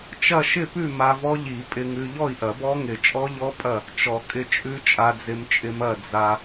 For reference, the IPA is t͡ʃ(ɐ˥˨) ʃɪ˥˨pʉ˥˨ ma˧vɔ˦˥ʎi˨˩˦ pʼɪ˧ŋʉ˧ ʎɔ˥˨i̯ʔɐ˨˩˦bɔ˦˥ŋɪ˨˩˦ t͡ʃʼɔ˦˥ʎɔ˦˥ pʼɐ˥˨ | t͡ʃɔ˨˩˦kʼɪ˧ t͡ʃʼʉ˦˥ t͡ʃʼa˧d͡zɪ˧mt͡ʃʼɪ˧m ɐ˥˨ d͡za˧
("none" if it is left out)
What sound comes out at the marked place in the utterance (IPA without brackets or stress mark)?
ɐ˥˨